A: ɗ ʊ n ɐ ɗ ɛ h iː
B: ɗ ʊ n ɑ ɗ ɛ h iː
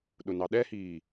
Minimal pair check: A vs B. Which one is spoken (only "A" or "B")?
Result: B